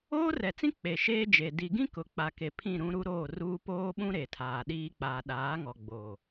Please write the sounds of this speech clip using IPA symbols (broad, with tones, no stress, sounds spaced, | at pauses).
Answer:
oː˦ r ɛ˨ t͡s ĩ˦ k͡p e˨ ʃ eː˦ d͡ʒ e˨ d i˨ ɡ ĩ˦ k ʊ˨ k͡p a˨ k e˨ pʰ ĩ˦˨ ɾ ũ˦ ɾ u˦ ɾ oː˦˨ r uː˦ p oː˦ ɓ ũ˦ ɾ e˨ tʰ aː˨ ɗ iː˦ k͡p aː˨ ɗ aː˨˦ ŋ ɔ˨ ɡ͡b oː˨